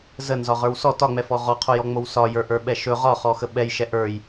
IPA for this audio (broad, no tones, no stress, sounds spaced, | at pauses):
z ə n z ɒ ʁ ə˞ w s ɔ t ɒ ŋ͡m ɛ f ɔ ʁ ɔ qʰ o j ɔ ŋ͡m o w s ɒ j ə˞ ʔ ə˞ ɓ ɛ ʃ ɵ ʁ ɒ χ ɔ x ə ɓ ɛ j ʃ ɛ ʔ ə˞ j